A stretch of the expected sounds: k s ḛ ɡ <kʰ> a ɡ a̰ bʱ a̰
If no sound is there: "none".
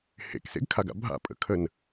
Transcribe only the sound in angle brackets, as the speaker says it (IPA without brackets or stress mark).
kʰ